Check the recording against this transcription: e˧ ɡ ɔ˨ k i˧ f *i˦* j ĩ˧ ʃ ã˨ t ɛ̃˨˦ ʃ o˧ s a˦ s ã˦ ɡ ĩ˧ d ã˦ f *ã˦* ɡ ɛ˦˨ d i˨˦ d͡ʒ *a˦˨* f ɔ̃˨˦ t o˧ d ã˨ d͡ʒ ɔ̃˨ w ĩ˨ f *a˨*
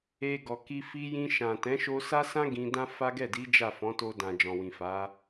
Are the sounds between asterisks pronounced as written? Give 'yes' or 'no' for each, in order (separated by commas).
no, no, yes, no